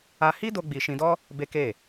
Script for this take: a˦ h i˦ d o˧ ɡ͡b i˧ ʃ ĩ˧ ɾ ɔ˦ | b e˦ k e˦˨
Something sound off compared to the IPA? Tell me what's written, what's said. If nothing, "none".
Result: ɾ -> d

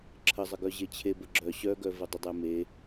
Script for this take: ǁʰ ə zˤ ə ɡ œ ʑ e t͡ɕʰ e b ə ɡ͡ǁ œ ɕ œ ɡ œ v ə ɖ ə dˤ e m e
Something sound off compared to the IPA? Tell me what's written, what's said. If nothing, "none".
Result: ɖ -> dˤ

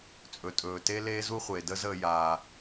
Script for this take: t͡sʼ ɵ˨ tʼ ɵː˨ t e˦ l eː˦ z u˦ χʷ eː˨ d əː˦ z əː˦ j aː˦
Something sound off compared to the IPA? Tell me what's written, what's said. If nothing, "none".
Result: none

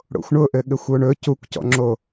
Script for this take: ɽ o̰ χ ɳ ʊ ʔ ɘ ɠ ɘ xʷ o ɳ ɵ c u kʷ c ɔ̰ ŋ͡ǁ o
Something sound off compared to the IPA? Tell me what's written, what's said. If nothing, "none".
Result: χ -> xʷ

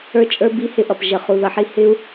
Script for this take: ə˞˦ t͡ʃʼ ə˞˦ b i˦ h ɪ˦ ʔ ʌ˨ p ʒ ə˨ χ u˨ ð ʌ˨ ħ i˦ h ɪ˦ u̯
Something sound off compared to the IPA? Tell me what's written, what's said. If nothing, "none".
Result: none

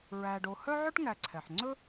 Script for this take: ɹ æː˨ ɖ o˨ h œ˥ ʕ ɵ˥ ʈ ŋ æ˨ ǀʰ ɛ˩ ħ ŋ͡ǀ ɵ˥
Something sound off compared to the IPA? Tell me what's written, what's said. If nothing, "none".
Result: none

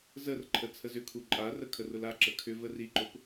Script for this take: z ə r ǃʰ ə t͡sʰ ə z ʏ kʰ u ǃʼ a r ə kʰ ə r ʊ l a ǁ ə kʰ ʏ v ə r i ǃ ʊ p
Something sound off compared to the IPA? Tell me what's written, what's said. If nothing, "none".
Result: none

